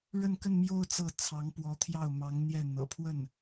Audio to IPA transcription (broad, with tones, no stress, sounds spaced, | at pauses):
ɻ ə˥˧ n k ə˥˧ n m j o˥˧ ʊ̯ t͡s ɤ˥˩ t͡sʰ ɑ˧˥ ŋ p w ɔ˧˥ t̪ʰ j ɑ˥˩ ʊ̯ m ɑ˧˥ ŋ n̪ j ɛ˥˩ n̪ ɤ̰˨˩ pʰ w ə˥˩ n